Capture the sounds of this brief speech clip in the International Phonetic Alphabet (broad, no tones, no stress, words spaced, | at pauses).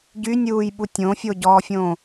ɟynʲuːjɓu tʲõfʲoɟɔːfʲõ